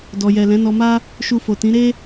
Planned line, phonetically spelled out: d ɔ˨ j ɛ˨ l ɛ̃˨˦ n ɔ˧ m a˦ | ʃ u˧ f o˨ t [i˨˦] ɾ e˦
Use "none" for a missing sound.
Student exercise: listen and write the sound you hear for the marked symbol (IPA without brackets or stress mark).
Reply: ĩ˨˦